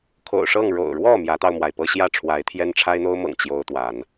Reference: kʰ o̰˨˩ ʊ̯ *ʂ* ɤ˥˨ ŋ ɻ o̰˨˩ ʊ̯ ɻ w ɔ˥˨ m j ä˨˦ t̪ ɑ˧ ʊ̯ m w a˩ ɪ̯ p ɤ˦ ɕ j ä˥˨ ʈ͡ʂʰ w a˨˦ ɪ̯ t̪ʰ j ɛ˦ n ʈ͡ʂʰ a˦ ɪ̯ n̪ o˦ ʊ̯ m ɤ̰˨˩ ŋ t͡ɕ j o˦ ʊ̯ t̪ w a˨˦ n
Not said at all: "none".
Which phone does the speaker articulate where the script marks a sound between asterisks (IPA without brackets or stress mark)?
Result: ʂ